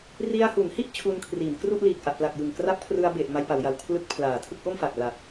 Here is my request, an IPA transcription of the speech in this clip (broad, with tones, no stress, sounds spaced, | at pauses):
r i˧ a̯ h u˩˦ n h i˥˩ ʔ t͡ɕʰ u˧ n kʰ r iː˩˦ n k r u˥˩ ʔ l iː˨˩ k̚ ʔ a˨˩ ʔ p l a˨˩ k̚ j ɯ˨˩ ŋ k r a˦˥ p̚ kʰ r ɯ˧ a̯ b e˨˩ ʔ m a˧ j p a˩˦ w j a˩˦ w kʰ l ɯ˦˥ k̚ pʰ l aː˨˩ tʰ ɯ˥˩ k̚ ʔ o˥˩ m f a˨˩ k̚ l a˨˩ k̚